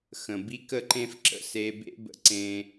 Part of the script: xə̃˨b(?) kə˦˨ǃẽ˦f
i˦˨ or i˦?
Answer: i˦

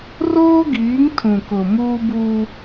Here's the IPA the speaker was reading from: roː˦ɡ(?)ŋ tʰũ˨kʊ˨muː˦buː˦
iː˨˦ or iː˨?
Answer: iː˨˦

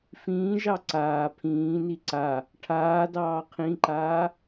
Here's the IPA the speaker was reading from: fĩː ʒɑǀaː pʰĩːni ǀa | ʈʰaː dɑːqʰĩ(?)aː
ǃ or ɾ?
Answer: ǃ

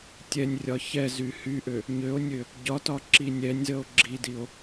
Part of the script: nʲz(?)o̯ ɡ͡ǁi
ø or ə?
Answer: ə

